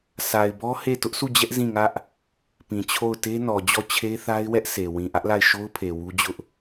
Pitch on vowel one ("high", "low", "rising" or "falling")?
low